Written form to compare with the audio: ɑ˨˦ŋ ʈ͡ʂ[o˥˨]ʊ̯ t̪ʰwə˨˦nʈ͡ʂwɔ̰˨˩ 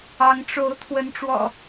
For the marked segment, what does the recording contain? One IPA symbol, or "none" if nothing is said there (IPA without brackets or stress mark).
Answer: o˨˦